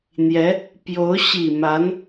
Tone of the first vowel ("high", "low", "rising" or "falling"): rising